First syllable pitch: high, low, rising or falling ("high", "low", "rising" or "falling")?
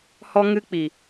high